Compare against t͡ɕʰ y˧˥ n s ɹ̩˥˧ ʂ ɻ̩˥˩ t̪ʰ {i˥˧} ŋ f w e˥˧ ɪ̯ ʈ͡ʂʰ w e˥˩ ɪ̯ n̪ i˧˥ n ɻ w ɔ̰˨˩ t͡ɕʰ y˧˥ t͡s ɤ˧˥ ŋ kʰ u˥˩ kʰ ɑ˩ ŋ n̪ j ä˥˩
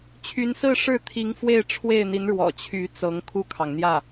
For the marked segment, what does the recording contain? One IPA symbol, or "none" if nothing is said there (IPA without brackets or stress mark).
i˧˥